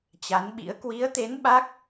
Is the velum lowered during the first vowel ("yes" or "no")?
no